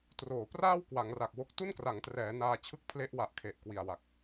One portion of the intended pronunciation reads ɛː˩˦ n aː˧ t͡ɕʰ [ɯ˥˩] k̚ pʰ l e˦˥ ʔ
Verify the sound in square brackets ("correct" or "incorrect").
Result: correct